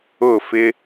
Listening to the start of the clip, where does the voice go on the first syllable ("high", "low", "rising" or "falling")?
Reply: falling